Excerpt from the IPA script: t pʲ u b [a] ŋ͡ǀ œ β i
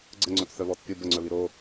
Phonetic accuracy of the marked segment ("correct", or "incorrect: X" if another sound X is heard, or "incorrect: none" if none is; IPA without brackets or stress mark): incorrect: ə